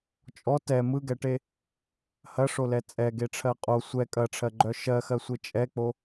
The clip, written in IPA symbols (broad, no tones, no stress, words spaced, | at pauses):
t͡ʃʼɔ tɛ mɯɡɛʈe | hɐʂolɛ t͡sʼɛɡeʈ͡ʂʰɜ qʼo sʷɛ kʼɐʈ͡ʂʰɜɡ͡ǃœ ʃɜxɜsʷe t͡ʃʼɛk͡po